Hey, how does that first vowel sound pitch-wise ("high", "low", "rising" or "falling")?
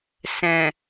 low